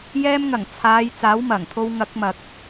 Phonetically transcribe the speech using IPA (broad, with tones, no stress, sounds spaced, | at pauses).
j ɛː˧ m ŋ ɐ˨˩ ŋ t͡sʰ aː˨˧ j t͡s aː˨˥ w m ɐ˨˩ ŋ t̪ʰ o˧ w ŋ ɐ˨˥ k̚ m ɐ˨ k̚